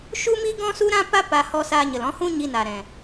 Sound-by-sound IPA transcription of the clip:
ʃu˦mi˦ ɡɔ̃˦su˦ɾã˦pa˦ pa˧hɔ˧saː˧ɲə˨l ɔ̃˧hũ˦ ɲi˧na˨ ɾɛ̃˨

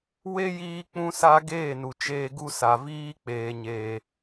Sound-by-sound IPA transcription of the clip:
we˦jiː˧ k͡pũ˧sa˧ ɡeː˦˨nu˨ t͡ʃeː˧ɡu˦sa˨ viː˦k͡peː˨ ɲeː˨

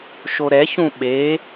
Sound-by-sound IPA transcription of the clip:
ʃoɾɛç ũɓe

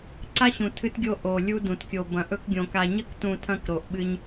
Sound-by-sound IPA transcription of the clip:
ǀa˦ɕũ˨ tʰɨ˦tɡʲo˦ ʔo˨lʲu˦ dũ˨tkʲo˨ bɐ̃˨ʔɵ˦kɡʲõ˨ ka˨ɲɐ˦ktũ˨ tʰɐ̃˦kɾo˨ʔɓɨ˦ɲ

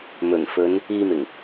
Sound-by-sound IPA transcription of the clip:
mɵ˨˩nfɵ˨˧n | iː˧mɪ˨˩ŋ

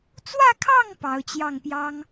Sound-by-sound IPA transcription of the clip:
t͡swä˥˧kʰɑ˥˩ŋ pɑ˧˥ʊ̯ t͡ɕjɑ˥˩ŋpjɑ˥ŋ

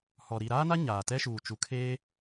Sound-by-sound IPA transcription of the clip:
hɔ˨ ɾi˨ɾaː˦na˦ ɲaː˨tɛ˦ʃuː˨ t͡ʃu˨kʰeː˦

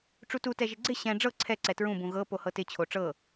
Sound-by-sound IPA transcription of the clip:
ʈ͡ʂututɛʒɪ ɡ͡ǀɪ ɕɛ̃ ɖ͡ʐɤ ǀʰɛ ǀɛtɹũ bũɣɤ pohɤtɪt͡ɕʰo ʈ͡ʂɤ

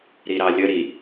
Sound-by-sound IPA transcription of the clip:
ɾiɾɑlʲə ɾi

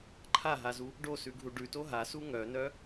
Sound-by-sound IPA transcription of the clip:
ǃʰaɦazu | ɖosʉɡʱu ɖʉto ɦasu ŋœnœ

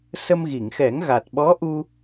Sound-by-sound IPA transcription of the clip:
sə˧mɣi˨˩˨ŋxɛ˨˩˦ŋ ɣa˨˩t̚ɓɔ˧˥ʔu˧

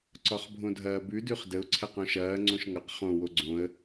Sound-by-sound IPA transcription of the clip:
ǀɒχbʱõdʱɐːbʉ dʉχdəʊ̯ ǀʰɛqõʃɐː ŋ͡ǀõʃŋʌq χõ woɡ͡ǀõə̯

